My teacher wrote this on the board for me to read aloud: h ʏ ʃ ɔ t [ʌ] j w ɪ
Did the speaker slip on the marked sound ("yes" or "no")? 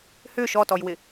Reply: yes